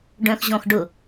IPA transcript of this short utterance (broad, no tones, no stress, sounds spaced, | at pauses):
ɖ œ̃ x ʑ ɔ̃ x ɖ ʊ